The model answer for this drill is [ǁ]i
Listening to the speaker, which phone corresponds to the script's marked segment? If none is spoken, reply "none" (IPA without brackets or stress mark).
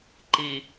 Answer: ǃ